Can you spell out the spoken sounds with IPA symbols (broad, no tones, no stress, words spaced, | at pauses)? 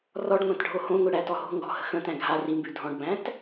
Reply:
rɔɖ ŋʷãtɖʱohõŋʷi ɽætɔɦo̤ŋɡɔ̤ hə̤xə̃tæ̃ ɡʱa rimbʉ dʱɔ̃ɖbæ̃t